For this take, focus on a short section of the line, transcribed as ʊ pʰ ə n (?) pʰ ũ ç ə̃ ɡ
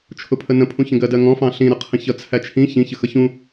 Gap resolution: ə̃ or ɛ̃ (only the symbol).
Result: ə̃